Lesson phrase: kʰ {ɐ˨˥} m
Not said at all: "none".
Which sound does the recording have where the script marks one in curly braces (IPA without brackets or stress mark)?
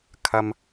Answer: ɐ˨